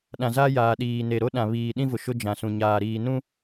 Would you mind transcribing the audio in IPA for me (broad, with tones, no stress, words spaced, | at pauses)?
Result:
ɗã˨za˦jaː˨ɗiː˨ ne˨ ɾo˦ɗã˨ βiː˨ɗĩ˦vʊ˨ ʃʊ˦d͡ʒã˨sũ˨ ɲaː˨ɾiː˨nũ˦